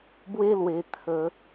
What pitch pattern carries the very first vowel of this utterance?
high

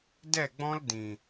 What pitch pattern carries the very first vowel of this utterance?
falling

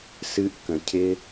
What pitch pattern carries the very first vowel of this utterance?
high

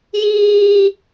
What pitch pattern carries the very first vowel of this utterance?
high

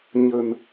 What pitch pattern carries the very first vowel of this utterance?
low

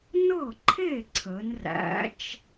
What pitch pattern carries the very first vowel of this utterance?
falling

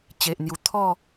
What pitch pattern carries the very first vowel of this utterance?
low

